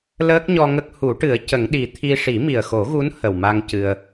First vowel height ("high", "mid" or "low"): mid